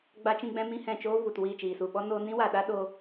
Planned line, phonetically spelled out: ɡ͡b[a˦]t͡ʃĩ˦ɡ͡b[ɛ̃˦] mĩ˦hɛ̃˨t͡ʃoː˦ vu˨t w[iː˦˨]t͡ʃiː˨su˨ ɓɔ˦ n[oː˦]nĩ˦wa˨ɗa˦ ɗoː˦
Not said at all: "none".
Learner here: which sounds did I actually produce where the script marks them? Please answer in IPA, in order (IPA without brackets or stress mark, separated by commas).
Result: a˦, ɛ̃˦, iː˦˨, oː˧